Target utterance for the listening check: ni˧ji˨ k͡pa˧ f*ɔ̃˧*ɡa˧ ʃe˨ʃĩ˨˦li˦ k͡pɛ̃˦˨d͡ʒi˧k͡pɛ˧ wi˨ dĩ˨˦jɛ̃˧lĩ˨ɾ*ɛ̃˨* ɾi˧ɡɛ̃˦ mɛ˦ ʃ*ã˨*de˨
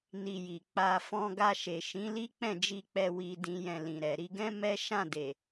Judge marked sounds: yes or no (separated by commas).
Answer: yes, no, no